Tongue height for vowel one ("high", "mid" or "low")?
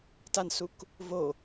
low